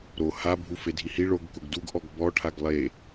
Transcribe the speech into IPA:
ɾ o h a bʱ u f e dʱ i h i ɭ o ɡ k ʊ ɡ d u ɡ ʔ ɔ ɡ b ɔ ʈʰ a ɡ lˠ e

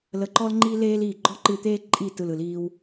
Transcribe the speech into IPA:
l ə˧˩ ǃ ɔ˦ l ŋ͡ǃ i˦ l eː˦ l iː˧˩ ɡ͡ǃ ɔ˦ ǃ ɨ˧˩ t̪ eː˦ ǃʼ i˧˩ t ɯ˧˩ l ɯ˧˩ l iː˦ w

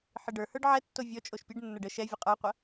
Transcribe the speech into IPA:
ħ ɨ ɖ ə˞ h ə˞ ɖ ʕ ɛ tː o vʲ ɔ t͡ʃʼ o ʃ pʲ ɨ ɖ nː ə˞ ɖ ə ʃ ɛ vʲ ə qʼ ə˞ qʷ ɐ

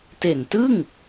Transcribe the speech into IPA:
t e˨˩ n t ɯ˥˩ ŋ

